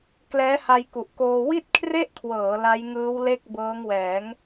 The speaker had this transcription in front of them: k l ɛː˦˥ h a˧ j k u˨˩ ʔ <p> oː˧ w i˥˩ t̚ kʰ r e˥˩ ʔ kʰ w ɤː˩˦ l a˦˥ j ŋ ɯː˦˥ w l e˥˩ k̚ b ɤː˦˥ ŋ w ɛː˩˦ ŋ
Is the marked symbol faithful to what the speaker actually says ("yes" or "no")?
no